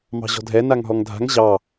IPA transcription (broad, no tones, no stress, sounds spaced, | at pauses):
m ɑ̤ ʑ ɔ̤ dʱ ɛ n a ŋ ɦ ɔ ŋ dʱ a̤ ŋ ʑ ɑ